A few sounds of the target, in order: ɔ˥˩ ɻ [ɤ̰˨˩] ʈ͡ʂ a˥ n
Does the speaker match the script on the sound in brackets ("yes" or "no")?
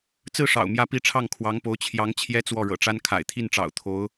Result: yes